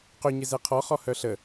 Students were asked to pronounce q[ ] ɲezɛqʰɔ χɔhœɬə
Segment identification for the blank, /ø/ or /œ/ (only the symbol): ø